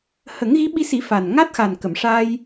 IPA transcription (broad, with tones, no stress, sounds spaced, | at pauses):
h ə˨˩˦ ŋ ɣ i˧˥ ɓ i˧ s i˨˩˦ f a˨˩ n ŋ a˦˥ t̚ x a˨˩ n k ə˨˩˨ m ʂ a˧ j